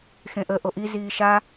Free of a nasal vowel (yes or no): no